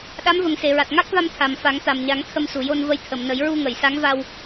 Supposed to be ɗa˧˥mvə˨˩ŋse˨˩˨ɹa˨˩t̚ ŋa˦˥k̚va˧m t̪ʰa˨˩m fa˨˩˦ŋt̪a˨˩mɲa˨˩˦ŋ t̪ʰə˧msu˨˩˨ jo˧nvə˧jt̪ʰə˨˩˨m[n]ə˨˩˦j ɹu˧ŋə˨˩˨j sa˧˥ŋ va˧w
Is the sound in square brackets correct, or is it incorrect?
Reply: correct